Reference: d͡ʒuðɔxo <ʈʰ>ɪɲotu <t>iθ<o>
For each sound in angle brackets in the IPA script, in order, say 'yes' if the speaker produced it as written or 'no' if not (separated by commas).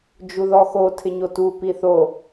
no, no, yes